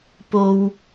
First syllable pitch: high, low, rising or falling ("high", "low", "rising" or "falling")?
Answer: low